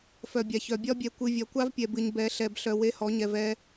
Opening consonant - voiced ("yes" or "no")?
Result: no